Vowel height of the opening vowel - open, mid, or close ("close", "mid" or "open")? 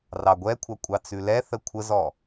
open